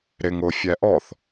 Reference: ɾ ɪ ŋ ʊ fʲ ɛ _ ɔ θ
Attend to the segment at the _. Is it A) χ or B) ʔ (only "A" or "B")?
B